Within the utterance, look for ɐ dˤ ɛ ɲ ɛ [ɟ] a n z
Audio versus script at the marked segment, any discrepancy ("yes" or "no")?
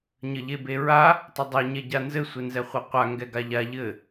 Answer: no